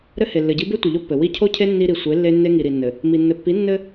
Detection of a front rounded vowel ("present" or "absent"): absent